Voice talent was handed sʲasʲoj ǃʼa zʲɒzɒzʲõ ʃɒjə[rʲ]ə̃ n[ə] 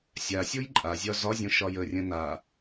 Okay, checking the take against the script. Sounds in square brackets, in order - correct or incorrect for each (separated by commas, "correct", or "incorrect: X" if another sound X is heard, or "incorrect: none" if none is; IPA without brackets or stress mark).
correct, incorrect: a